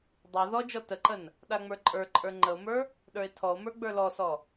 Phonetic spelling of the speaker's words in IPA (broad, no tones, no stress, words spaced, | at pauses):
dˤə˞ ðɔd͡ʒɔ təǃən | ɗaŋ͡mə˞ǃʼə˞ǃʼə˞ ŋ͡ǃəo̯mə˞ | ɗə˞e̯tʰɔo̯mə˞ ɡ͡bə˞lɔsɔ